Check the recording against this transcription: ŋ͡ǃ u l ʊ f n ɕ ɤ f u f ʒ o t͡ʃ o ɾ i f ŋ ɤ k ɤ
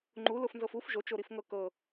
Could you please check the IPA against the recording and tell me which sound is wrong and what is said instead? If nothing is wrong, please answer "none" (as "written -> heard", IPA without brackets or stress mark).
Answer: ɕ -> z